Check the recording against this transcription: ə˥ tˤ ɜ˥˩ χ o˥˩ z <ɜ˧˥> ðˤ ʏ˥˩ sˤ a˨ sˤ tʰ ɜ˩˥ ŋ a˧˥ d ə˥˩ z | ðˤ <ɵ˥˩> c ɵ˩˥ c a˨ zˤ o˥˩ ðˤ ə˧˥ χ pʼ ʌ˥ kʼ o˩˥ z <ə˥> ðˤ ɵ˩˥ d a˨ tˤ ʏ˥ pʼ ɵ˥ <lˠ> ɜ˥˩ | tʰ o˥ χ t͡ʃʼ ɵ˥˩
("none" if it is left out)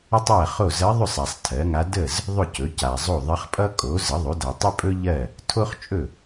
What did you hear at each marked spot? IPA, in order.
ɜ˧˥, ɵ˥˩, ə˩˥, ʎ

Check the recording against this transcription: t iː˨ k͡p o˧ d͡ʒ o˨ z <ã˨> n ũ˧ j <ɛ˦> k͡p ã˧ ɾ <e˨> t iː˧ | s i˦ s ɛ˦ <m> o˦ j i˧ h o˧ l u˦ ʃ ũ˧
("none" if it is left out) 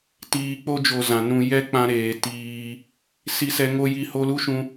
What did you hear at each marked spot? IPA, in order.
ã˨, ɛ˦, eː˨, ŋ

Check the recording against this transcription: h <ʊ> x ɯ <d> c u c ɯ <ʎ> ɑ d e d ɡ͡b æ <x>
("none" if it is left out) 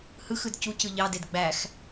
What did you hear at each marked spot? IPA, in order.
ɯ, d, ʎ, x

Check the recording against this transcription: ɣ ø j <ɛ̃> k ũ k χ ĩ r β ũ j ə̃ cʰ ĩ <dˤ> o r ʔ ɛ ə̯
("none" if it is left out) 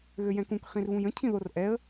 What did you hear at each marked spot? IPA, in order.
ɛ̃, ð

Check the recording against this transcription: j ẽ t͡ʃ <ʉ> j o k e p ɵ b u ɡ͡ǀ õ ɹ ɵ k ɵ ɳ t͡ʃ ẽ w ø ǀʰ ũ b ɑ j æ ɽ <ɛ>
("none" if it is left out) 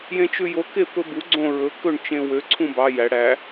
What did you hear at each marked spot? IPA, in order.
ʉ, æ

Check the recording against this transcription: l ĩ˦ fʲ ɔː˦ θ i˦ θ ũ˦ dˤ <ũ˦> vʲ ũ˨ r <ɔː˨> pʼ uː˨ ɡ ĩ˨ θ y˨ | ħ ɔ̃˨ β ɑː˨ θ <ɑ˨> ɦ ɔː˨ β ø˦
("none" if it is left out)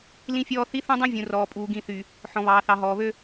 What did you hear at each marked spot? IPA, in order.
ũ˦, ɔː˨, ɑ˨

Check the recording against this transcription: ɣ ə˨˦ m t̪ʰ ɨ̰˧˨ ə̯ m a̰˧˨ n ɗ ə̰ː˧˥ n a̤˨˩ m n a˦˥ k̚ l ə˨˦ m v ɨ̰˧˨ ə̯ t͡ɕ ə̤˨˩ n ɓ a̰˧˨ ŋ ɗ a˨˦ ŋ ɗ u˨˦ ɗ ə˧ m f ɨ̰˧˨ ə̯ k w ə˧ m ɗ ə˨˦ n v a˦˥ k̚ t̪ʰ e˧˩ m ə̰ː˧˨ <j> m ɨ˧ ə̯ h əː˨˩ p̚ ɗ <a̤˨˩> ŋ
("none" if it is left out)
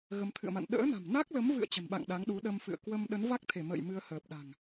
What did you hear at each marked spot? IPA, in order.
j, a̤˨˩

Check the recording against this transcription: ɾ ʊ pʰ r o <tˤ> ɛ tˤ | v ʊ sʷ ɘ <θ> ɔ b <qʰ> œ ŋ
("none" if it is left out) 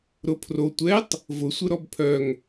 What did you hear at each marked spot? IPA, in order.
tʷ, ɾ, pʰ

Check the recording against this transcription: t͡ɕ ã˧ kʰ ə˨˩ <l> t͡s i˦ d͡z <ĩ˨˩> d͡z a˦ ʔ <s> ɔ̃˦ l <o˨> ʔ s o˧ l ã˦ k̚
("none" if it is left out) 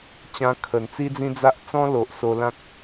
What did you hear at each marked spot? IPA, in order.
n, ĩ˦, t͡s, o˨

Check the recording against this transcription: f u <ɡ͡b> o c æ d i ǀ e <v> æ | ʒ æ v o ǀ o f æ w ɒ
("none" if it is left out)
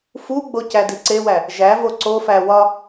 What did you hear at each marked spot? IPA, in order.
ɡ͡b, w

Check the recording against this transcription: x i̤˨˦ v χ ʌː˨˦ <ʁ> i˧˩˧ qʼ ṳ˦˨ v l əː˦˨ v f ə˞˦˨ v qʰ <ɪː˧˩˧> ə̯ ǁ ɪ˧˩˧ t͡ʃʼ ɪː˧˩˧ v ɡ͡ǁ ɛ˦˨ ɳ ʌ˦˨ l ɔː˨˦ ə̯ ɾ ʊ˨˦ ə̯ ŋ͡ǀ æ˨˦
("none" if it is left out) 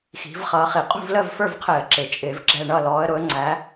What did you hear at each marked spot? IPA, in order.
χ, ɪː˧˩˧

